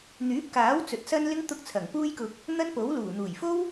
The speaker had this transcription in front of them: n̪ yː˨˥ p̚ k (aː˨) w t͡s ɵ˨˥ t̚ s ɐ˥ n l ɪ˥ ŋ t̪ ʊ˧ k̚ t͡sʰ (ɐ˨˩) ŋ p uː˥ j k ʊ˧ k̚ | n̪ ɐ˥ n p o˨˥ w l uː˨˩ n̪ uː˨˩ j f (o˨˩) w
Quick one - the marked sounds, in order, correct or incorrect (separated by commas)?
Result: incorrect, correct, incorrect